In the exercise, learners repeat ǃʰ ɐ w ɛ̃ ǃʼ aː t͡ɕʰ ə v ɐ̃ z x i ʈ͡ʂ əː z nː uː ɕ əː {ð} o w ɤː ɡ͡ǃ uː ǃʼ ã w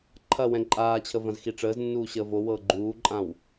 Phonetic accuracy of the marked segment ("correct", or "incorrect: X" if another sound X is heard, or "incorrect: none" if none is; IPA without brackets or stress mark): incorrect: v